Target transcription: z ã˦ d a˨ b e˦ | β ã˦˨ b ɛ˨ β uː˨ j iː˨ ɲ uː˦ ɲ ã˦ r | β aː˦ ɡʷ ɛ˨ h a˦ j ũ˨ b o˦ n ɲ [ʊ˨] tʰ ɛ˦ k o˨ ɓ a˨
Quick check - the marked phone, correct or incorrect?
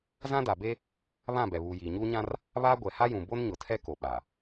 correct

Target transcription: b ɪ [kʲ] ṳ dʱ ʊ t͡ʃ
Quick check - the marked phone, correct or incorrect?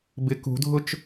incorrect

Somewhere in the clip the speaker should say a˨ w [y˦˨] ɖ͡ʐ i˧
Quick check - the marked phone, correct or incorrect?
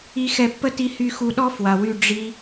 correct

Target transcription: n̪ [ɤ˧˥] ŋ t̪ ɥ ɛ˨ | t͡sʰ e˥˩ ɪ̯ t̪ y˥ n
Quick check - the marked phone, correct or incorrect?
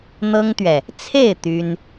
incorrect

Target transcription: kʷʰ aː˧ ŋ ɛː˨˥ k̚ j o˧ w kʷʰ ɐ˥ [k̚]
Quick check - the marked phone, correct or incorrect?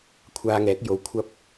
incorrect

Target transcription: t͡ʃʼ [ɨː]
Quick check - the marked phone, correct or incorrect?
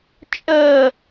incorrect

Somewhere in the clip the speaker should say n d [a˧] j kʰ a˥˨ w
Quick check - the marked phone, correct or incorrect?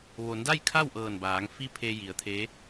incorrect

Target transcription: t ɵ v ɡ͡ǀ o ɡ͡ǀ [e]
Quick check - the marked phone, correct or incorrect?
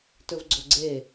correct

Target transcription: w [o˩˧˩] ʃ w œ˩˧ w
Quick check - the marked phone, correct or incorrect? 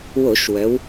incorrect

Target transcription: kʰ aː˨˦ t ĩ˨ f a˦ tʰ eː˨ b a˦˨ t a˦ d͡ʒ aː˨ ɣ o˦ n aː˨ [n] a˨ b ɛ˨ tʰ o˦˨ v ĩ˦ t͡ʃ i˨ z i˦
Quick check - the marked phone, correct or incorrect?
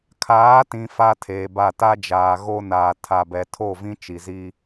incorrect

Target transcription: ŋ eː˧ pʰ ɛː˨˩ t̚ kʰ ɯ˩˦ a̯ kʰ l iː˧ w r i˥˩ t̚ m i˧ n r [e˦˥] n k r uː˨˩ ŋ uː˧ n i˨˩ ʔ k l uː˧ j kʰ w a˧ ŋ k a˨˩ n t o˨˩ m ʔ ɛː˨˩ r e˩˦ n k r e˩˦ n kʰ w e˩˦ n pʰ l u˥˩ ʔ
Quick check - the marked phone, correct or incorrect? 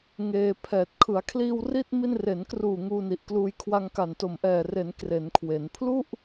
incorrect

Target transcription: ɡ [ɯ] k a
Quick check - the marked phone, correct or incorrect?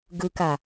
correct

